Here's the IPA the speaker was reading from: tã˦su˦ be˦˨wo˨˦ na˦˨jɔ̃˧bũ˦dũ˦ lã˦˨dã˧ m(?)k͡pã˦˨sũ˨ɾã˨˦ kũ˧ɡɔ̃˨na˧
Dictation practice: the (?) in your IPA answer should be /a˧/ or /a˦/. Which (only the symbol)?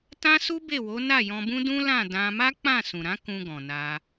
a˦